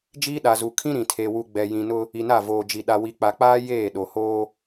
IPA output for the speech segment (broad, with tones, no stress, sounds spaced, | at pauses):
d͡ʒ iː˦ ɗ a˨ z u˨ kʰ ĩ˦ ɾ ĩ˨ tʰ e˨ w u˨ ɡ͡b ɛ˨ j ĩ˨ n ʊ˦ | i˨ n a˦˨ v oː˨ d͡ʒ i˨ ɗ a˨ w i˨ k͡p a˨ k͡p aː˦ j eː˦˨ ɗ o˨ h oː˦